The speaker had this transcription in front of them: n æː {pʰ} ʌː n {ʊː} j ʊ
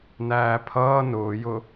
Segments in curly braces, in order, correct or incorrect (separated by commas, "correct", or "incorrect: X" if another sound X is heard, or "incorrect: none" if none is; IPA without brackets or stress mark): correct, correct